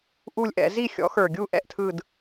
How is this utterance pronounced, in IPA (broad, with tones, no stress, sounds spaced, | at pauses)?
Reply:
ʔ u˥˧ lʲ ʔ ɛ̰˨˩˦ z i˥˧ xʲ ɔ̰˨˥ x ə˞˨˩ ɡʲ u˥˧ ʔ ɛ̰˥˧ ʔ tʰ ɯ˥˧ d